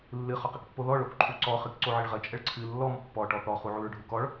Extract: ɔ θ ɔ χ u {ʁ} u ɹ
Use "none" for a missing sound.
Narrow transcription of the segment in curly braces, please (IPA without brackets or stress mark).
ʕ